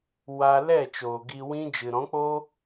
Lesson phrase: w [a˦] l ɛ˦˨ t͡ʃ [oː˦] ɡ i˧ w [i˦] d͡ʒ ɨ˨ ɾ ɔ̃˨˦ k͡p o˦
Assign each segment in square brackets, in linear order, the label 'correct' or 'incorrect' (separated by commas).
incorrect, incorrect, incorrect